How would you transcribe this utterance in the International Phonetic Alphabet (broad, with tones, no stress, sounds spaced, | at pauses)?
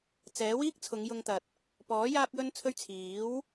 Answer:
t͡s ɛː˨˥ w iː˥ k̚ t͡sʰ ʊ˨˧ ŋ j ʊ˧ ŋ t̪ ɐ˨ t̚ | p ɔː˨˥ j aː˧ p̚ j ɵ˧ n t͡sʰ ɵ˧ ɥ t͡sʰ iː˨˥ w